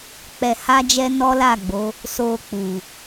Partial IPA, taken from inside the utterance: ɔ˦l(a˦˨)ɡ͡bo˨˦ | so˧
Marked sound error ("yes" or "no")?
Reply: no